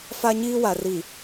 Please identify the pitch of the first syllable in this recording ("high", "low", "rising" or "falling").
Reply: high